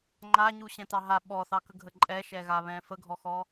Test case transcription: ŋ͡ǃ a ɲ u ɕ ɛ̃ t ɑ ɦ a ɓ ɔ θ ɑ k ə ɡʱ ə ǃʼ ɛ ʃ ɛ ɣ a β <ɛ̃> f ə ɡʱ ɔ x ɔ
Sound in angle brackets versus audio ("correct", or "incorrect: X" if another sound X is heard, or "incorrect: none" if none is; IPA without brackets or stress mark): correct